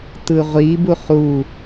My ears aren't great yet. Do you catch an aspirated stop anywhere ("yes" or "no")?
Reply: no